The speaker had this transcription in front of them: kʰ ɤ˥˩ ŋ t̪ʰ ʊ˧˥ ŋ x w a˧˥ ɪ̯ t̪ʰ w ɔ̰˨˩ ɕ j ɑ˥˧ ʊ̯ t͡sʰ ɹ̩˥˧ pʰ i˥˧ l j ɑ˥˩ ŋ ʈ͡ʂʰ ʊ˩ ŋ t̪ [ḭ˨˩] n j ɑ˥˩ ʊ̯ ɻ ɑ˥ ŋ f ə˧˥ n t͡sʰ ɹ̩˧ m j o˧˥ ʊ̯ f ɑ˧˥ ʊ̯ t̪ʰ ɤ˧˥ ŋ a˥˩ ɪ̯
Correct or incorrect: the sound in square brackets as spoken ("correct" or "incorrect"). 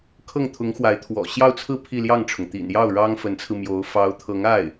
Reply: correct